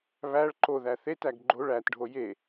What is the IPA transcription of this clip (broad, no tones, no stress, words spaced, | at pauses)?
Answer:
βæɭ ǃo ðæθetæɡ ɡ͡ǃoɭ ætɖʱo je